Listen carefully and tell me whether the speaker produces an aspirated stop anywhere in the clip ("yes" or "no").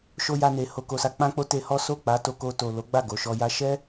no